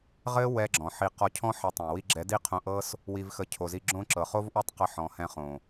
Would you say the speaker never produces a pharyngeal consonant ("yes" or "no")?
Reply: no